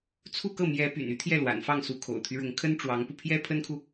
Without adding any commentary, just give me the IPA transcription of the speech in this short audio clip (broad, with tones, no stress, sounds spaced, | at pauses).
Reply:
t͡sʰ u˥˧ k ɤ˥˩ m j ɛ˧˥ p y̰˨˩ n y˥ t̪ʰ j ɛ˥˩ l w a̰˨˩ n f ɑ˥˩ ŋ s u˧˥ kʰ o̰˨˩ ʊ̯ t̪ʰ y˦ ɻ ʊ˧˥ ŋ kʰ ə˥ n ʈ͡ʂ w ɑ˧˥ ŋ p u˧ pʰ j ɛ˥ pʰ ə˥ n kʰ u˨